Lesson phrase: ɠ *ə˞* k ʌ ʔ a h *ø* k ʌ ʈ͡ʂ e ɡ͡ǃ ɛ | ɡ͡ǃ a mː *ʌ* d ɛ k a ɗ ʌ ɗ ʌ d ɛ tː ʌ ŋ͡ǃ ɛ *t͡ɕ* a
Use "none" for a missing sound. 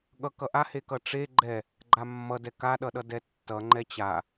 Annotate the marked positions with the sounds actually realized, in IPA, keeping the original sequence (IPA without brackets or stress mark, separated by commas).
ʌ, e, ʌ, t͡ɕ